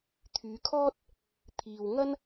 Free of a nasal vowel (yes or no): yes